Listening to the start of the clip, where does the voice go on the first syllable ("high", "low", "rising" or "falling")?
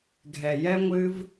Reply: low